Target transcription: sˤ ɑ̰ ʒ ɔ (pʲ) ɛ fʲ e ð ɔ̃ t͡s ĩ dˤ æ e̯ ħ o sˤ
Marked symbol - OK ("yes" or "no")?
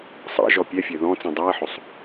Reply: yes